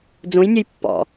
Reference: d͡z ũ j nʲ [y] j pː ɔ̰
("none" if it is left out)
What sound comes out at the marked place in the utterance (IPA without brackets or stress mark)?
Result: u